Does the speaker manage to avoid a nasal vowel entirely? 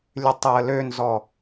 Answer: yes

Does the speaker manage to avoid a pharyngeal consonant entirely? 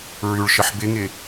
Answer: no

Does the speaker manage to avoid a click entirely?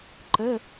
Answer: no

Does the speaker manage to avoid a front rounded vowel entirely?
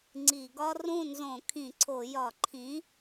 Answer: yes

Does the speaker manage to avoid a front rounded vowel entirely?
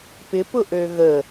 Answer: no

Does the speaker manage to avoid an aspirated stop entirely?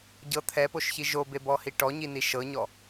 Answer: no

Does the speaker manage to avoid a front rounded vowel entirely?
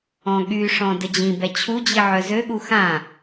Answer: no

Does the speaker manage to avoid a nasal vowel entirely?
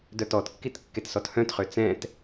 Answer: no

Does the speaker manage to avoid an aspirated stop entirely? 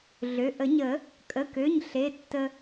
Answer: yes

